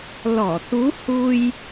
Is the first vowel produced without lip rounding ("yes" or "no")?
no